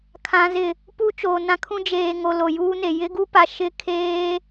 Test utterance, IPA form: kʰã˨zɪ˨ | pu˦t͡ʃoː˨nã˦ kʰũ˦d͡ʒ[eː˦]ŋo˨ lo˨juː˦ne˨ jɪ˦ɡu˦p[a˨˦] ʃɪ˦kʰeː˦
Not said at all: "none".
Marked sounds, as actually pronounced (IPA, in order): eː˨, a˨

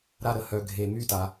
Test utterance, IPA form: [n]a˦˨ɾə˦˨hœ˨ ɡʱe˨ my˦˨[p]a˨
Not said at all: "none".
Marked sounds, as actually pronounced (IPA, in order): ɾ, t

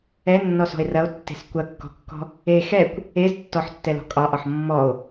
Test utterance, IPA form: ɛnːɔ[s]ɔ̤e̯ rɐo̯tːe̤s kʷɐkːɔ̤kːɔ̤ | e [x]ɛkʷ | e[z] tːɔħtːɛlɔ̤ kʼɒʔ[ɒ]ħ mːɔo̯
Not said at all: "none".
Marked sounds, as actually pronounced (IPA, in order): s, x, z, ɒ

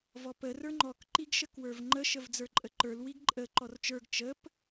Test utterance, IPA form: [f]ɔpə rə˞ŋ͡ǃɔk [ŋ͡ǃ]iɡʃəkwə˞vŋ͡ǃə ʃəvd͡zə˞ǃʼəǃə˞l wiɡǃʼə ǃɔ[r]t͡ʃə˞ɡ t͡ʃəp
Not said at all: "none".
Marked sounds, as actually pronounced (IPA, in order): v, ǃ, r

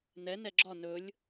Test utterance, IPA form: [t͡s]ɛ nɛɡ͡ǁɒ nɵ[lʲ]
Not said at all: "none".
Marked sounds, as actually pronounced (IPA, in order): n, lʲ

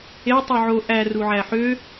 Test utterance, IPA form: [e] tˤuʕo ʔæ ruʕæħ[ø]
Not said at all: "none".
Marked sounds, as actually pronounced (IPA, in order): e, ø

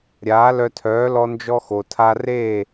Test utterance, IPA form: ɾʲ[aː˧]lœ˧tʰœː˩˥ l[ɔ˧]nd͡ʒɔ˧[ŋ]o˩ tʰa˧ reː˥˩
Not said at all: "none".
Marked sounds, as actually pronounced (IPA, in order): aː˩˥, ɔ˧, x

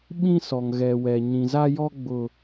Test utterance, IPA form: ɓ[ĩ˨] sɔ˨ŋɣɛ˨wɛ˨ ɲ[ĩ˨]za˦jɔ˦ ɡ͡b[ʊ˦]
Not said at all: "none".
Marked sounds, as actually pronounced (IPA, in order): ĩ˦, ĩ˨, ʊ˦

